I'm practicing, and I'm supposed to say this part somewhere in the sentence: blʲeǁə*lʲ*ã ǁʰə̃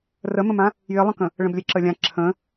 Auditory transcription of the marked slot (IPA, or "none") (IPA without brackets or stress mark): lʲ